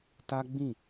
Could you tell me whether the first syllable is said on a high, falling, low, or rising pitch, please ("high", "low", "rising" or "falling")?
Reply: high